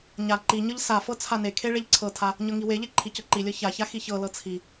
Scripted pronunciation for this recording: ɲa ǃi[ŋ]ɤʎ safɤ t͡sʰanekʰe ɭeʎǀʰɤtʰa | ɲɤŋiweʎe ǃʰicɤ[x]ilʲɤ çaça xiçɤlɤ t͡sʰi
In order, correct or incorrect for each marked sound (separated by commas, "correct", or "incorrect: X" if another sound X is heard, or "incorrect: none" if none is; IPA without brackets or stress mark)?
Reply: incorrect: ɲ, incorrect: ǃ